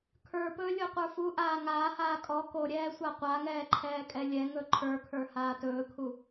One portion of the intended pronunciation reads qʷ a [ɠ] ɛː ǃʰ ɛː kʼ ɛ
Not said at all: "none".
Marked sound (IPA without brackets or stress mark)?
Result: ŋ